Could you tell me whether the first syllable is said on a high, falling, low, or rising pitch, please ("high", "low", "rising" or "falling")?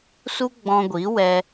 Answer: high